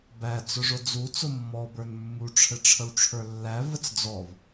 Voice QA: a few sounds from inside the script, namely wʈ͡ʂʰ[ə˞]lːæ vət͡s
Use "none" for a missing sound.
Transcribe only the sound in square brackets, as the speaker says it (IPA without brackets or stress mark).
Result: ə˞